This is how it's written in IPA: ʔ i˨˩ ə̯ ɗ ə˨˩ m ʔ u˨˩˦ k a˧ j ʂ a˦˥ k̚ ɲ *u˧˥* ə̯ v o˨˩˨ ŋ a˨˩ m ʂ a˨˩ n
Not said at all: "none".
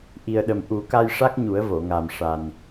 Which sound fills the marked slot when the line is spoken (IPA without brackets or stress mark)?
u˨˩˦